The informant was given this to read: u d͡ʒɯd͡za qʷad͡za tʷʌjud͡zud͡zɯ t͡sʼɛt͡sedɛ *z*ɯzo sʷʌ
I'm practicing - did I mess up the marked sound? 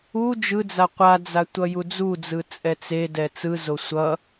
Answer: yes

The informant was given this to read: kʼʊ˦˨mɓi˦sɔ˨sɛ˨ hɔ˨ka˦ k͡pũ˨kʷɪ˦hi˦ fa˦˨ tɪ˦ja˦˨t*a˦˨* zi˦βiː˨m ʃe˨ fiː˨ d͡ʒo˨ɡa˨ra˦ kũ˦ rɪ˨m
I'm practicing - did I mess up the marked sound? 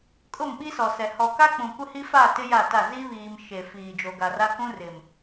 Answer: no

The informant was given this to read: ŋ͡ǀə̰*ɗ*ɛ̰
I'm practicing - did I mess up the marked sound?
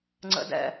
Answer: yes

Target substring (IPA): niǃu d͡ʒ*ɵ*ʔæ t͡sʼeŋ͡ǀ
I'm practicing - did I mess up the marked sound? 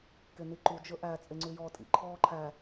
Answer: no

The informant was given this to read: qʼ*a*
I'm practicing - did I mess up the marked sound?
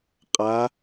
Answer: no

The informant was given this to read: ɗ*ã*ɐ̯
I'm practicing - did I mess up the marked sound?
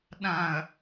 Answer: no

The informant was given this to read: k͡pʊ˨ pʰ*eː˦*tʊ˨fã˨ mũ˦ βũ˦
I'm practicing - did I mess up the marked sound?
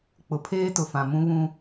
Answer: no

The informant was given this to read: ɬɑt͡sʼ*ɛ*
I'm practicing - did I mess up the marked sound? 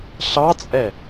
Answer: no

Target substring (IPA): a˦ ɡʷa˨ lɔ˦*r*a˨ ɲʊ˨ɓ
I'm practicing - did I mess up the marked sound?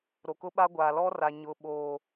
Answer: no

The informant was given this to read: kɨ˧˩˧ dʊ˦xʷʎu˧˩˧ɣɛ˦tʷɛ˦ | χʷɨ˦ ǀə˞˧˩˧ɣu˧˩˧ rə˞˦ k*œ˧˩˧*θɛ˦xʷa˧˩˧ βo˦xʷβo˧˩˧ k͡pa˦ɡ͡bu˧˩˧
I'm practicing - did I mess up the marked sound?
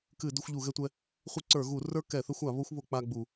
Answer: yes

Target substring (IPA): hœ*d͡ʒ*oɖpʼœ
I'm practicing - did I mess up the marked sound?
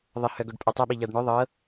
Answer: yes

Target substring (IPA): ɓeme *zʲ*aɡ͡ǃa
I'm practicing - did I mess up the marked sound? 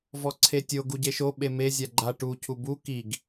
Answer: no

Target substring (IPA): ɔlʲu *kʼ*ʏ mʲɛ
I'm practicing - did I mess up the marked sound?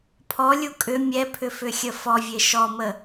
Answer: no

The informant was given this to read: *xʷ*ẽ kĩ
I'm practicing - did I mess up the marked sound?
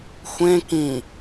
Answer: no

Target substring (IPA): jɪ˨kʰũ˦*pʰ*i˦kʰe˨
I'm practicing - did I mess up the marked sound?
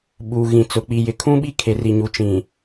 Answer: yes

